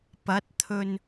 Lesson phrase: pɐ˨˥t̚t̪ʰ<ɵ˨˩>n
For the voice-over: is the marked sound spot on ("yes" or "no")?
no